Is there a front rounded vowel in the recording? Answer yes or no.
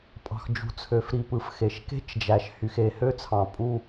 yes